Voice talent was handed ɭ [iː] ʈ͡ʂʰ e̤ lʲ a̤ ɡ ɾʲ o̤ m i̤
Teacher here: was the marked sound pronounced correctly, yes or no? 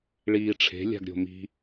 yes